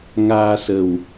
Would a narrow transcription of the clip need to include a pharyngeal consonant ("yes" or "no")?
no